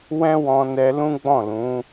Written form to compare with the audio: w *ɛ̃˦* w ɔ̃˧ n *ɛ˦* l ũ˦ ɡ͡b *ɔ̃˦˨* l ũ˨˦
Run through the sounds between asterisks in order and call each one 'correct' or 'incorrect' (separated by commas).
correct, incorrect, correct